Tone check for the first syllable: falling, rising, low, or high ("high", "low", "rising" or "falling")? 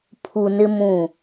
low